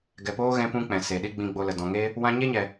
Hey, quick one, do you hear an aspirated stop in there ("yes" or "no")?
no